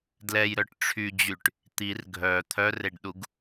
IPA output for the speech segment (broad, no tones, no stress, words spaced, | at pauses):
dlɛjɾœʈ ʈ͡ʂʰyd͡ʑyʈ | t̪ir ɡʱœ t̪ʰœreɖɗuɡ